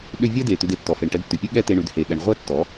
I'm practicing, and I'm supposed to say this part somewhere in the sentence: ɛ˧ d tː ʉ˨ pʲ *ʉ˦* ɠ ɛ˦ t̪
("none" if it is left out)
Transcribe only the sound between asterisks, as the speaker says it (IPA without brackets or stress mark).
ʉ˦